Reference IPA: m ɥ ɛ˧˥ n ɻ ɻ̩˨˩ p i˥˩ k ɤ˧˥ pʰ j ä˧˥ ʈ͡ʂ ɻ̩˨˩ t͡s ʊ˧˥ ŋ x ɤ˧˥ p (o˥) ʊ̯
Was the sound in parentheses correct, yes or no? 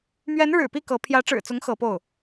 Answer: no